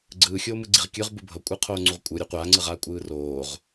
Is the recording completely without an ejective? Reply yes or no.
no